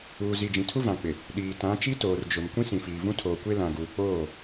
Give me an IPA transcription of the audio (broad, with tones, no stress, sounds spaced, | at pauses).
uː˨ z i˨ d͡ʒ ĩ˨ tʰ u˦ v ã˨ k͡p ɪ˨ | ɗ iː˨ t ã˨˦ t͡ʃ i˦ t oː˨ r d͡ʒ ʊ˨ m kʷ ĩ˦ s ĩ˨ f iː˨ v ũ˦ tʰ oː˨ kʷ e˦ l ã˨ ɡ uː˨ k͡p oː˦˨